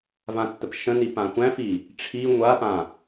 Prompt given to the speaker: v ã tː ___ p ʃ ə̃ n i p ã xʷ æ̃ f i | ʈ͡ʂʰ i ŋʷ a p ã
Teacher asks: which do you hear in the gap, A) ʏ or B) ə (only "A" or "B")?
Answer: B